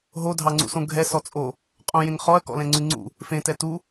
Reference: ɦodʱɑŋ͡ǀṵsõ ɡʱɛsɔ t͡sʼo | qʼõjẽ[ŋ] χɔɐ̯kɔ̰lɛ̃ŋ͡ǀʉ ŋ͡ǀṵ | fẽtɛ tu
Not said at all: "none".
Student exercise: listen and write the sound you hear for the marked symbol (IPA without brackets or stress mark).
ŋ